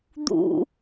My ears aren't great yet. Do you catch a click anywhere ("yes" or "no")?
no